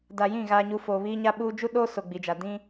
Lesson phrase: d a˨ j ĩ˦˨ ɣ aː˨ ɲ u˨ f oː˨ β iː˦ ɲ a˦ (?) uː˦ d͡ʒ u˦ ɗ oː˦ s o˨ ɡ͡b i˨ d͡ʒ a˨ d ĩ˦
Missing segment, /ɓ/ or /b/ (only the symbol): ɓ